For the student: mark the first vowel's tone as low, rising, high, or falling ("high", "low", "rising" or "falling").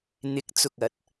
rising